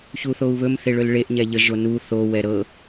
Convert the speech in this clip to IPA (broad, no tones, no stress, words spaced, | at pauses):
çuθou̯βɵm θeɭɵlɭeʔ ɲɛʎə ʒonu θo wɛɾɤ